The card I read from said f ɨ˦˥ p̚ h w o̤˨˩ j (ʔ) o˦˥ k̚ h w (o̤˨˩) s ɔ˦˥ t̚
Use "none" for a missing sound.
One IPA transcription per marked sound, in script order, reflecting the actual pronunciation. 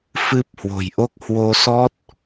ʔ, o˧

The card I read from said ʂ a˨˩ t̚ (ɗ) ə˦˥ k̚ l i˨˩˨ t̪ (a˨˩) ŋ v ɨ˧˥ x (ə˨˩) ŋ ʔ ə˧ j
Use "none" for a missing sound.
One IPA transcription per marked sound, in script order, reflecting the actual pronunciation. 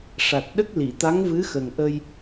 ɗ, a˧˥, ə˨˩

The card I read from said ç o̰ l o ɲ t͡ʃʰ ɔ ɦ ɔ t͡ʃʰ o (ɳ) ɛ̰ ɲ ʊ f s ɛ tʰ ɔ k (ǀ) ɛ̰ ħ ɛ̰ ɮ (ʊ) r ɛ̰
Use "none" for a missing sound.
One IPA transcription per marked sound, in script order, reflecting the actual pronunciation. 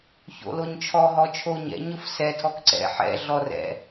ɲ, ǀ, ɔ

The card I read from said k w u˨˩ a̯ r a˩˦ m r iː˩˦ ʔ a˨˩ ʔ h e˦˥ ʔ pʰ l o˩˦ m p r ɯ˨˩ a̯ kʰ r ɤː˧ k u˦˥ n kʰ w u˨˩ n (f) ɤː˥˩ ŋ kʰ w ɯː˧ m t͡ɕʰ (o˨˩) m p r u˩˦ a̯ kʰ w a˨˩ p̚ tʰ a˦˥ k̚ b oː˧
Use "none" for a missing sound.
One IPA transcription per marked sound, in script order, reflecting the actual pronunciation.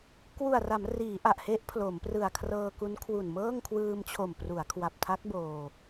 m, o˨˩

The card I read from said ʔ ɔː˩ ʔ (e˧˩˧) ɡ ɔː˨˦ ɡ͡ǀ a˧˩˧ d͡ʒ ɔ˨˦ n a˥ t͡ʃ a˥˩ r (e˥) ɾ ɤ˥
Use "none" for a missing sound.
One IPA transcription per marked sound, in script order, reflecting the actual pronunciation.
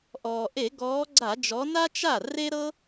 e˧˩˧, e˥

